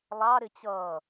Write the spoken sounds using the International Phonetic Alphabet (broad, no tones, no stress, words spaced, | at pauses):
lˠɑ ɾɪt͡ɕʌː